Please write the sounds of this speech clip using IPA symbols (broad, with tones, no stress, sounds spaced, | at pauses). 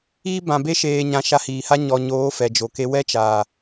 iː˦ b ã˨ b e˧ ʃ eː˨ ɲ ã˨ ʃ a˧ h iː˨ h a˦ ɲ ɔ˧ ɲ oː˨˦ f ɛ˨ d͡ʒ o˨ k e˧ w ɛ˦ t͡ʃ aː˨